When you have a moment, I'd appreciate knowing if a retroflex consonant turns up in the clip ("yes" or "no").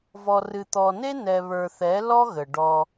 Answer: yes